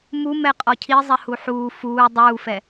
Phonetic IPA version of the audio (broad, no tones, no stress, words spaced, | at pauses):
mumɛ qʼɔcʰizˤɛ huħuː fuː dˤuːfɛ